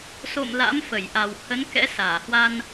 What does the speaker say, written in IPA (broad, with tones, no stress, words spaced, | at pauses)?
so̰˧˨m la̰˧˥mfə˧˩jʔa˨˩whə˨˦n kɛ̰˧˥saː˧˩hwa˧n